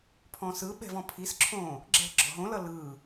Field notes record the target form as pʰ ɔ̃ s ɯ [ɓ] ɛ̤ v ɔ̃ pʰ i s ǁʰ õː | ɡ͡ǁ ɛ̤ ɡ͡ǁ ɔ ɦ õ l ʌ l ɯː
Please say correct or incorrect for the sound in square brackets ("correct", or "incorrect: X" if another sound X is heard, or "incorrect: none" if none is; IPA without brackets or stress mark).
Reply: correct